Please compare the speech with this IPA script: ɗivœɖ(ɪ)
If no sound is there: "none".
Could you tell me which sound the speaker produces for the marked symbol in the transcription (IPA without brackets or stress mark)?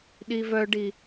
i